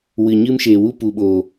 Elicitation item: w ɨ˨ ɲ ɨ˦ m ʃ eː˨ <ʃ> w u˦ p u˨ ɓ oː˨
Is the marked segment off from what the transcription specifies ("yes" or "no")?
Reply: yes